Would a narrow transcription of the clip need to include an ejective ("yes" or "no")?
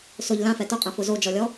yes